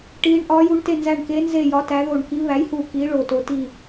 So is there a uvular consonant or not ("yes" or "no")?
no